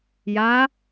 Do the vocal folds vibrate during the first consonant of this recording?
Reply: yes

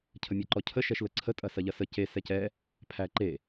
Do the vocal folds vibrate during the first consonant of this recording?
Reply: no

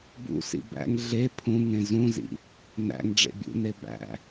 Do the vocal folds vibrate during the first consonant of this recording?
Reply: yes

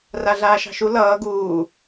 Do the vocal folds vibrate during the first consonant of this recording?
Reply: yes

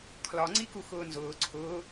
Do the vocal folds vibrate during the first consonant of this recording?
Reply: no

